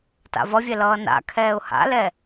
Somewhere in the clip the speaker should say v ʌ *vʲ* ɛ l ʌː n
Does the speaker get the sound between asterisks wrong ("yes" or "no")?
no